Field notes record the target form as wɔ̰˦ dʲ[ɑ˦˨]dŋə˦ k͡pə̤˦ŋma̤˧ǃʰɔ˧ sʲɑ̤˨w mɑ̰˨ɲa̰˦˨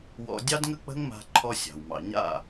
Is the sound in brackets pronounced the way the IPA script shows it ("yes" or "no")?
no